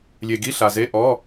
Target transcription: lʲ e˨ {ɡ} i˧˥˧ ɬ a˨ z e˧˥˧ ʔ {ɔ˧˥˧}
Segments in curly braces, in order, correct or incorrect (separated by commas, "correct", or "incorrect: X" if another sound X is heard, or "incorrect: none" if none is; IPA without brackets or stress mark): correct, correct